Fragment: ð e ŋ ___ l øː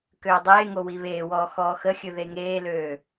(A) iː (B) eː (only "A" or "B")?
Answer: B